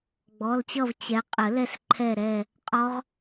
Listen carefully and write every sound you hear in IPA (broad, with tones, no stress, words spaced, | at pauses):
ɡ͡bɔ˩˧˩lt͡ɕʌ˦˨v t͡ɕɛ˨˥ qʼə˨˩˦lɛ˦˨s ǃʰɛ˦˨ɾɛ˦˨ | qʼɔ˦˥ʁ